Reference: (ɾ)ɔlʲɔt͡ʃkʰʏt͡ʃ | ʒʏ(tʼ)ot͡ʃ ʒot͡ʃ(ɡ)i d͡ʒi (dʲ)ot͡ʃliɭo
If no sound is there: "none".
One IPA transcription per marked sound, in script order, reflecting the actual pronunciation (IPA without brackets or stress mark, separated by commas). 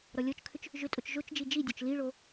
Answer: ɾ, tʼ, d͡ʒ, dʲ